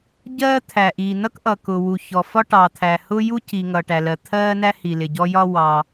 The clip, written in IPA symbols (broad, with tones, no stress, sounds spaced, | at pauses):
ɟ ɜː˥ t̪ʰ æ˩ ʔ iː˩ n ʌ˥ k ʔ ʌ˩ k ʊ˩ w u˩ ç ɔ˩ f ɒ˥ ʈ ɑ˩ t̪ʰ æ˩ h ʊ˥ j u˥ c i˩ ŋ ʌ˩ ʈ æ˩ l ɜ˩ t̪ʰ ɜː˥ n æ˥ h i˩ l ɪ˩ ɟ ɔ˥ j ɒ˥ w ɑ˩